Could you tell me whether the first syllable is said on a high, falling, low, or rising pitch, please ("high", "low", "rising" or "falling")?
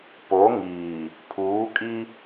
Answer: rising